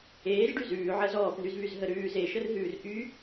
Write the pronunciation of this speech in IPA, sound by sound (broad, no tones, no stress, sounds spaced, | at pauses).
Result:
eː z ɖ y z ʉː ʕ ɜ z ɔː p n y z β y z ɦ ə ɾ ʉː z e ʃ ə r ɦ ʉː r ʔ y